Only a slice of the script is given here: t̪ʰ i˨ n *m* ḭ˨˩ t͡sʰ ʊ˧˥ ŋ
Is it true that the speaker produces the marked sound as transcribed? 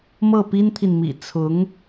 yes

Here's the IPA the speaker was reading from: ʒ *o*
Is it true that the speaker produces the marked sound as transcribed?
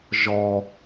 no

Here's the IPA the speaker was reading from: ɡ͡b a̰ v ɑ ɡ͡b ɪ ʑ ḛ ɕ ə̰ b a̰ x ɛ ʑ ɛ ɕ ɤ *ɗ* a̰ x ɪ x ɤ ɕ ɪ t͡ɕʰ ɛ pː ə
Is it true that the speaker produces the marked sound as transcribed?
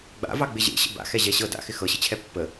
no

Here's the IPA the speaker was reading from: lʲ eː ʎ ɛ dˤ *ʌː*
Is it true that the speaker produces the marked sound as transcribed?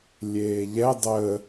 no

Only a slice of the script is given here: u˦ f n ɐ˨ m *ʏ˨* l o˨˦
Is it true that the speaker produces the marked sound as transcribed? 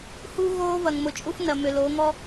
yes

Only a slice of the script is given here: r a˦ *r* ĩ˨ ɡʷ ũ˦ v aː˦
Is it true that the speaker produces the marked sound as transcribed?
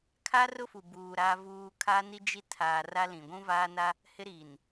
no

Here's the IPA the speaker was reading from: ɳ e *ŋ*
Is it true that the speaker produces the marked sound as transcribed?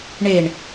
no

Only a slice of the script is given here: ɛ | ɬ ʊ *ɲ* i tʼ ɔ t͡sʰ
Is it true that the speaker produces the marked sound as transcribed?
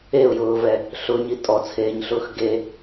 yes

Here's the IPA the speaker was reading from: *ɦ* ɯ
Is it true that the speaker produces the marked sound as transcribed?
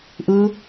no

